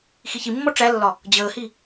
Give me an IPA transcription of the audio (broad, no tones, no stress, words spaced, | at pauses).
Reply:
xiçimːɔ ʈ͡ʂælːɒ | d͡ʑəːhi